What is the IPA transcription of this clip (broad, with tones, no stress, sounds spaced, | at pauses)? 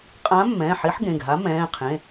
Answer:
qʼ ãː˧˥ mː ɛ̃ː˩˧˩ ħ i˧˥ ħ ɡ ẽ˩˧˩ ɡ ɦ a˧˥ m ɛ̃ː˩˧˩ qʰ ẽ˩˧˩